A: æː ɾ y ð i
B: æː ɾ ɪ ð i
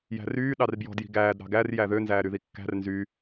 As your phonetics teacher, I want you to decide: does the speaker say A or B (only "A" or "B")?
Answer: A